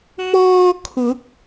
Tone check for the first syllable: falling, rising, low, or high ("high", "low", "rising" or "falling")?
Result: high